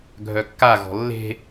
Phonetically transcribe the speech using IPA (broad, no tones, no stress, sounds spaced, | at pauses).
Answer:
ɡʱ œ kː a ɣ ɔ̤ lː e̤